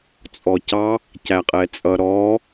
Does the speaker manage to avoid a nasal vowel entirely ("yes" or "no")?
yes